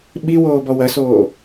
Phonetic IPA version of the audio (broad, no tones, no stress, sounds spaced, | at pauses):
ɓ i w oː b ɔ w ɐ s oː